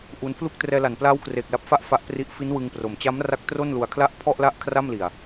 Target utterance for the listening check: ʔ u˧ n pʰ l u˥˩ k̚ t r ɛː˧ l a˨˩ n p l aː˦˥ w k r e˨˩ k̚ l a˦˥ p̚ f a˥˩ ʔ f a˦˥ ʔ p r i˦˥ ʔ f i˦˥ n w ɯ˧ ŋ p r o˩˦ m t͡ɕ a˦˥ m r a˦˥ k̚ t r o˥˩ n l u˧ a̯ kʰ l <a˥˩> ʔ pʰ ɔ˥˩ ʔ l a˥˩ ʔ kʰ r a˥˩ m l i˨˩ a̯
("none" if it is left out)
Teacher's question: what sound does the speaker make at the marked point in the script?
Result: a˥˩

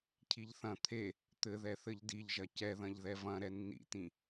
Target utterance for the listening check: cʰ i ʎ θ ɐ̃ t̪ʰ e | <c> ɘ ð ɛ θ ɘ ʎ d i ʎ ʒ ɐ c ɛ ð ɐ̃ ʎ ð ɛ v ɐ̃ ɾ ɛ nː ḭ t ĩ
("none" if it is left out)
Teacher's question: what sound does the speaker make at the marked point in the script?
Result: t̪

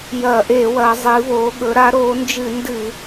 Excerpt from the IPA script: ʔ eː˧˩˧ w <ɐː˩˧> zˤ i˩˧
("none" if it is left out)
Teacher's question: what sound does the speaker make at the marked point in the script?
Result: ɐː˩˧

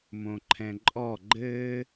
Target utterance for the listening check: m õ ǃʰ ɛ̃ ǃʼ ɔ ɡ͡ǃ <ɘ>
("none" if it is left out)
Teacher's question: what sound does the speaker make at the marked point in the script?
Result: ɘ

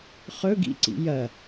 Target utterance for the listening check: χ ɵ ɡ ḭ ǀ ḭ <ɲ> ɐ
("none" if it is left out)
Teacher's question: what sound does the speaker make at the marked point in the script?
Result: j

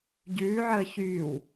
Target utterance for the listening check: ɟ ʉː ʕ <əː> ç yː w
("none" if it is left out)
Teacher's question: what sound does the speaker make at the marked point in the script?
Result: əː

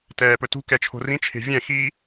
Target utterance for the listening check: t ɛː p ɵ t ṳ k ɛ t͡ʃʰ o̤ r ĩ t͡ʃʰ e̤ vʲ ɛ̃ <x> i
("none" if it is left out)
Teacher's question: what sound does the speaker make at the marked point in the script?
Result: x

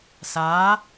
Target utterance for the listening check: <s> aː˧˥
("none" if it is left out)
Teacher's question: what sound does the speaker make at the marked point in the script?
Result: s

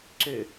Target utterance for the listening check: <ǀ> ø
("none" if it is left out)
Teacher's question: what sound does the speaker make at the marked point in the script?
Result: ǀ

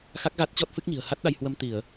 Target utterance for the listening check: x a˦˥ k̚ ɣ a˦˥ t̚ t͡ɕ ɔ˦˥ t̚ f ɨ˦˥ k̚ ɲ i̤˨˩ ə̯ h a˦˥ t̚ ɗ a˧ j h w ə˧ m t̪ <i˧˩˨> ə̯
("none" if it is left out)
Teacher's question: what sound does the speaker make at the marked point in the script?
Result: i˧˩˨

